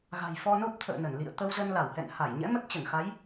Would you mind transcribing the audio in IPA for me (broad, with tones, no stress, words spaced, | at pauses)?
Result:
ɣa̤˨˩j fɔ˧no˦˥p̚t̪ʰə̰ː˧˨ nə˧˩nlḭ˧˨ə̯ t̪ə˧wzə˧nla˧˩whɛ̰˧˨n ha˧˩jɲɛ̰˧˥ mə˦˥t̚t͡ɕə˧˩nxa˨˦j